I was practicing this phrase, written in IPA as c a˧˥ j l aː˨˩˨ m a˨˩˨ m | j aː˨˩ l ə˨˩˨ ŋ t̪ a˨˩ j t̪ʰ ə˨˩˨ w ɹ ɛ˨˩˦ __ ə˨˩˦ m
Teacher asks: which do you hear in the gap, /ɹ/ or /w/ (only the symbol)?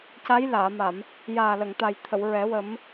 w